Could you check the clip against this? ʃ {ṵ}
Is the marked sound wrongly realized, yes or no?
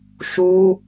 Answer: yes